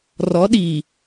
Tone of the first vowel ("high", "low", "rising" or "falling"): rising